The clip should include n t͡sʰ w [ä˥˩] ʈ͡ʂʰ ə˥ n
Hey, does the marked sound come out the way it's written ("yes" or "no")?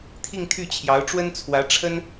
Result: no